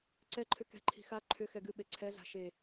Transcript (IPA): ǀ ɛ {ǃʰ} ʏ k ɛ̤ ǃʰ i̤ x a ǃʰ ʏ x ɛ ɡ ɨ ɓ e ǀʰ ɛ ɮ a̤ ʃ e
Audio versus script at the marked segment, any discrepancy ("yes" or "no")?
no